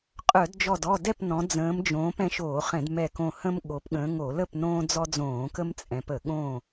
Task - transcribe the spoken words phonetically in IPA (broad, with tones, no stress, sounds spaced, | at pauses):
qʼ œ˧˩˧ d d͡ʒ ɔ˧˩ d ɔ˥˨ d ɛ˥˨ p n ɔ̃˨˦ d͡z ə̃ː˨˦ m d͡ʒ õː˨˦ p ɛ̃˨˦ ʃ oː˧˩˧ χ ɛ̃˧˩˧ d m ɛ˧˩ k õ˧˩ h ə̃˦ m ɠ o˨˦ p ɠ ə̃ː˨˦ ŋ o˧˩˧ l ə˥˨ p n õː˦ d͡z ɔ˦ d͡z õː˧˩˧ k ə˦ m t͡sʼ ɛ̃˨˦ p ə˧˩˧ ɠ õ˥˨